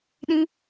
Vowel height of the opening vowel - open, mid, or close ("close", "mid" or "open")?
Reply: close